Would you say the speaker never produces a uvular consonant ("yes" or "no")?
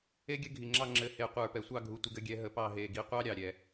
no